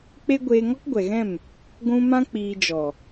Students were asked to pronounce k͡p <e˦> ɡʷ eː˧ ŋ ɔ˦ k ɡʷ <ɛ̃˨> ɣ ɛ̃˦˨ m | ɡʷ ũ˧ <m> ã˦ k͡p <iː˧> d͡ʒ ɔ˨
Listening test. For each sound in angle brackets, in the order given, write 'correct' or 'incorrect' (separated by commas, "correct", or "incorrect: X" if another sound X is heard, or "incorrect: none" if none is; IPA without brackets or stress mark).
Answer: correct, incorrect: ɛ˨, correct, correct